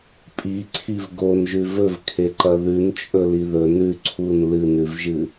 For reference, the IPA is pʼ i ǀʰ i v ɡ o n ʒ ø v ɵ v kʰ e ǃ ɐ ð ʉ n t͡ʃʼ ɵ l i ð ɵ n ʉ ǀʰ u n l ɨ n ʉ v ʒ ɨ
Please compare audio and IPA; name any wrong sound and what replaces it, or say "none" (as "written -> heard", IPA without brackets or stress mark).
ø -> ʉ